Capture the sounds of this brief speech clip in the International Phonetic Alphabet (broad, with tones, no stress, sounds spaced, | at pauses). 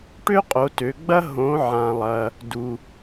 ʈ ø˥ qʼ o˩˧ t ø˩˧ ɡ͡b ɐ˥ ɦ õ˩˧ ʕ ã˩ lˠ ɐ˩ | d u˩